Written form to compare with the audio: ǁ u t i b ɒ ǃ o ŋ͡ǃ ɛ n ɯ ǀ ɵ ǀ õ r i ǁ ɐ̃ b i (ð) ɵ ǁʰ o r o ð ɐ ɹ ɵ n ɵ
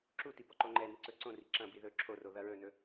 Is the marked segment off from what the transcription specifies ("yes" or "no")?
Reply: no